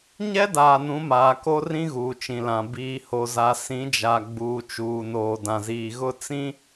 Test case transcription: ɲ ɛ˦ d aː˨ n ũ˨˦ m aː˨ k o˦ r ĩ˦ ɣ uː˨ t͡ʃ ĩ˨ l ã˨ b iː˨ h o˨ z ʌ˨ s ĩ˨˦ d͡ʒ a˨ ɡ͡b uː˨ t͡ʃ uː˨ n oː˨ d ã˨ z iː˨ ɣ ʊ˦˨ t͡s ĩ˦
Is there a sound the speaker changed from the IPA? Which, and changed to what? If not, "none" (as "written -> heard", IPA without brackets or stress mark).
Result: ʌ˨ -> a˨